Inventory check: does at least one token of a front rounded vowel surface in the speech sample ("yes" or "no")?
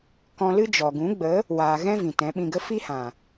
no